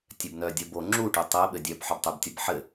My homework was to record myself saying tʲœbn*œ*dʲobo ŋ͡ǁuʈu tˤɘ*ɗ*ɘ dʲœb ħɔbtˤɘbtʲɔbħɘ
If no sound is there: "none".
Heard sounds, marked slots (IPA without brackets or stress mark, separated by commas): œ, ɓ